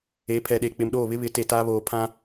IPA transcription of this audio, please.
e˨˦ pʰ ɛ˨ ɗ e˨ k͡p ɪ˨ m ɗ oː˦˨ β ɪ˦ β ɪ˨˦ t e˨ t aː˦ β oː˨ pʰ ã˦

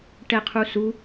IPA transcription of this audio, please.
ʈ ɛ qʰ u s u

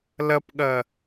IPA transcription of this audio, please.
l ɐ p ɠ ɐ

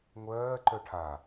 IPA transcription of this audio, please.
ŋʷ ɜː ǃ œ ʈʰ a

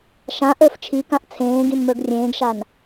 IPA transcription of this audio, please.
ʃ ã ʔ ə˞ f t͡ʃʰ i k ã ʔ t͡sʰ ẽː ɡ ĩ n m ə˞ ɡ rʲ ẽː ɡ ʃ a n

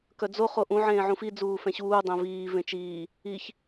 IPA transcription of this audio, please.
k œ d͡z o χ o ʔ ũ ʕ ẽː ʕ ũ f i d͡z uː f ɛ̃ ɕ uː dˤ ẽ v iː v ẽ t͡ʃ iː | i ç

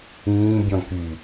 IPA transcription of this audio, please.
ĩː bʲ ɔ̃ k y

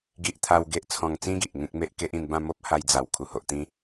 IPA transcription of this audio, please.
ɡ i˦ ʔ t̪ʰ a˦ w ɡ e˦ ʔ t͡sʰ ɔ̃˧ ŋ t͡s ĩ˦ ɡ i˨ ʔ ŋ ẽ˦ k̚ m e˦ ʔ k e˦ ʔ ĩ˧ n b ã˥˧ m o˦ p̚ h a˧ j d͡z a˨˩ w kʰ u˨˩ h o˨ ʔ t̪ ĩ˦

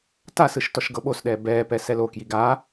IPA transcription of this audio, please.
t a s ɯ ʃ t ɔ ʃ ɡ ɤ ɓ o s ɗ ɛː b ɛː p ɛ s ɛ l o k j i ɡ a

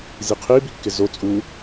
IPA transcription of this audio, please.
z i qʰ i b i kː ɪ z o t͡sʼ u

